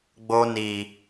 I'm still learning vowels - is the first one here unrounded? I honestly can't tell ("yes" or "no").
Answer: no